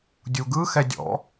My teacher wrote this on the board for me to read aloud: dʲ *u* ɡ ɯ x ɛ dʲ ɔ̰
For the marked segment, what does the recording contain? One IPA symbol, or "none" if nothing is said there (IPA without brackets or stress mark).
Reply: u